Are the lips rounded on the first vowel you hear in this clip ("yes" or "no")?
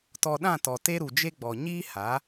yes